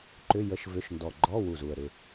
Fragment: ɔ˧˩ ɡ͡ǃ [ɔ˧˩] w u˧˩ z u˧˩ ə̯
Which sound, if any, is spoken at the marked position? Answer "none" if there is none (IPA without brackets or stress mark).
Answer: ɔ˧˥˧